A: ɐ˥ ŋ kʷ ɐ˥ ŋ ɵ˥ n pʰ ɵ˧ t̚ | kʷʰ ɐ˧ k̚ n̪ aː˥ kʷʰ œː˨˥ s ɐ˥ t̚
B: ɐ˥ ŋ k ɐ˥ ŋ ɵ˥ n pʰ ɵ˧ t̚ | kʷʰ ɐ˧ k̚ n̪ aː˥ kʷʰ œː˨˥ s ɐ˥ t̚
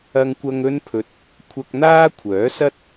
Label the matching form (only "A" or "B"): A